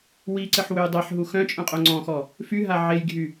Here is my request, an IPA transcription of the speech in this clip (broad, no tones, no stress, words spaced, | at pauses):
wiǀəħ wøjdˤeħɦu xœ̃t͡ʃʼœ̃ qʼoŋ͡ǀɔ̃xɔ | fyɦa ʕejɡʱy